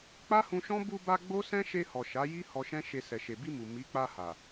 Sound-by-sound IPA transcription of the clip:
k͡p a˦ h ũ˧ ʃ ɔ̃˦ b u˧ b a˧ ɡ͡b o˦ s ɛ̃˦ ʃ e˧ h ɔ˨ ʃ a˨˦ j i˦ h ɔ˧ ʃ ɛ̃˦ ʃ e˧ s ɛ˨ ʃ e˨ b i˧ m u˨ m i˨˦ k͡p a˧ h a˨

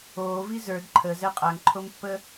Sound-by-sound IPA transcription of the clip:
oː v i z ə˞ d ǃʰ ə z ɛ qʼ a ŋ ǃʰ o m pː ə

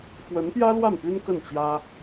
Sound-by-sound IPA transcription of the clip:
f w ə˧˥ n p j ä˥ l w a˥˩ n p y˥ n k ə˥˩ n t͡ɕ j ä˥

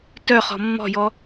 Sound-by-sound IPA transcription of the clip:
t œ χ ɔ̤ mː ɔ̤ j ɔ

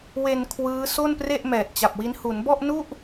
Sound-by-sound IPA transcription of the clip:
w e˧ n kʰ w ɯː˦˥ s o˥˩ n p r e˥˩ ʔ m ɛː˨˩ t̚ t͡ɕ a˨˩ p̚ w i˦˥ n h u˩˦ n b ɔ˥˩ ʔ n u˥˩ ʔ

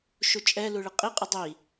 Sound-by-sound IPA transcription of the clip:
ʃ u t͡ʃʼ ɛ l u ɭ ɨ qʼ i qʼ ɨ dˤ i

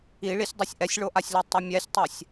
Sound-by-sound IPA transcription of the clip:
i ɭ i sʲ dˤ o sʲ ʔ ɛ sʲ ɭ o ʔ a sʲ l ɛ tˤ ʌ mʲ ɛ sʲ tˤ a sʲ

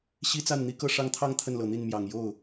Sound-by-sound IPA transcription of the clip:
ɕ i˥ t͡s a˥˩ n n̪ i˥ k ɤ˥˧ ʂ ɑ˥˧ ŋ t̪ʰ ɑ˥˧ ŋ t̪ʰ ə˥˩ n l ɤ˨˩ n̪ i˥˩ n m j ɑ˨˩ ŋ j o˥˩ ʊ̯

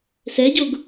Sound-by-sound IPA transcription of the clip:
s ɛ ɟ o ɡ

